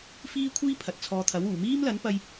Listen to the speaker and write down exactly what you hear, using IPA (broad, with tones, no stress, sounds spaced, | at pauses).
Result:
f iː˥ kʷʰ iː˥ pʰ ɐ˨ t̚ t͡sʰ ɔː˧ t̪ʰ ɐ˨˥ w uː˨˩ m iː˥ m l ɐ˨˥ n p ɐ˧ j